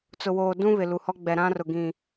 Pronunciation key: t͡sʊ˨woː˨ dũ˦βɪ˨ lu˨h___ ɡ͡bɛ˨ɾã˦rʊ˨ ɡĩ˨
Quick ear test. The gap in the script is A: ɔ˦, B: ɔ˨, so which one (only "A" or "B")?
A